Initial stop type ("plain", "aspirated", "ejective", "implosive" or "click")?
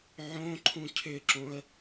click